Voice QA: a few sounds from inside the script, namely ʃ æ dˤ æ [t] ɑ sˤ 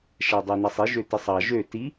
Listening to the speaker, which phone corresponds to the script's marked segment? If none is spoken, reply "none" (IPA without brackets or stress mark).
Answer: n